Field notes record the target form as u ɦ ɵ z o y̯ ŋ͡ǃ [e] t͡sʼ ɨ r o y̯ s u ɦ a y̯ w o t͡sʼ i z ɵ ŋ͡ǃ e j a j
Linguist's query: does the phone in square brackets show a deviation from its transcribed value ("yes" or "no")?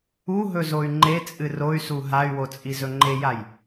no